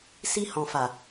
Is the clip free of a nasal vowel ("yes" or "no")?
no